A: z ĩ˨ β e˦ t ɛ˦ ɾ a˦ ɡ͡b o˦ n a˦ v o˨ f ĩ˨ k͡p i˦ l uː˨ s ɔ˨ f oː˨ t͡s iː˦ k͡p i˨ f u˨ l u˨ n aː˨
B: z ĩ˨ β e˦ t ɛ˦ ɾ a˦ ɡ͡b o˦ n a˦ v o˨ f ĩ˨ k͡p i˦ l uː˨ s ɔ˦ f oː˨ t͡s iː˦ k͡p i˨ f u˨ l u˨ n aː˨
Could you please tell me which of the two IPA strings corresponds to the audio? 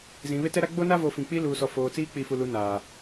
A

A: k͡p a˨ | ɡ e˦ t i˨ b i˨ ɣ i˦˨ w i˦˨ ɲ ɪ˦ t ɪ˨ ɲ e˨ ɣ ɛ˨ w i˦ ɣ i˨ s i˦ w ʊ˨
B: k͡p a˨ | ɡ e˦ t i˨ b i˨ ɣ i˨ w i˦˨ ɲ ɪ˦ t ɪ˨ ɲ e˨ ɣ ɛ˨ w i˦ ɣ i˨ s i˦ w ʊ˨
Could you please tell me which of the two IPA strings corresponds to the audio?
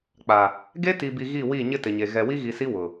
A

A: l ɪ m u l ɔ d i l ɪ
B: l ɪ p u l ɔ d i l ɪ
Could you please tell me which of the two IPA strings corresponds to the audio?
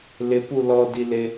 B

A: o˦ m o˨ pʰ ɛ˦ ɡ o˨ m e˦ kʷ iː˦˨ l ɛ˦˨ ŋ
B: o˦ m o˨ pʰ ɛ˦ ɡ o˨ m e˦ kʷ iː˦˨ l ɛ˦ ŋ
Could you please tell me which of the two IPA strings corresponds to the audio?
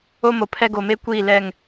A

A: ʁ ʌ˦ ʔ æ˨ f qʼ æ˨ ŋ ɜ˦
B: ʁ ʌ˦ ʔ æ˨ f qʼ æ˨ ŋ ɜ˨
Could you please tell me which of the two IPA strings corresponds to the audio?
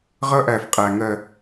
B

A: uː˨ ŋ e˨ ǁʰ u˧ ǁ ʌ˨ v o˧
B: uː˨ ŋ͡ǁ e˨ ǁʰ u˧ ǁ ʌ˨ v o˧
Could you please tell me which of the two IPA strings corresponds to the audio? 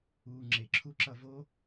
B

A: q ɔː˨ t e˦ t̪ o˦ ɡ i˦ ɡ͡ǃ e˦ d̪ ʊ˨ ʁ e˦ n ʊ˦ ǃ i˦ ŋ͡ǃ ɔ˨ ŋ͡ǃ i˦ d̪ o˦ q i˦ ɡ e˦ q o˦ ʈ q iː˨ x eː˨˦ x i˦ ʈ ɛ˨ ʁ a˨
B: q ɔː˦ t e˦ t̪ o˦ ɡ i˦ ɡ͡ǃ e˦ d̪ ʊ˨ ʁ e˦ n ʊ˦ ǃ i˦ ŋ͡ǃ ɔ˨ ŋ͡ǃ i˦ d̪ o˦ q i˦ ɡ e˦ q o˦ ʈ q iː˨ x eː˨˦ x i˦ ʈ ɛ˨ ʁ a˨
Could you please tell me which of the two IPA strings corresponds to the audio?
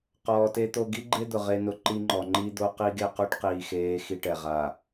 A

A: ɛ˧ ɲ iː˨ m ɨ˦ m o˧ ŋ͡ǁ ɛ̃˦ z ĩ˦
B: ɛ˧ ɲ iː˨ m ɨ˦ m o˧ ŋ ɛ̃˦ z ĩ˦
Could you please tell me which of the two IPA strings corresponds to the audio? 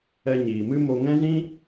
B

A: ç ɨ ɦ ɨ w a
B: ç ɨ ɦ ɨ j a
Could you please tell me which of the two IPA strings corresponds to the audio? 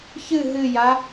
B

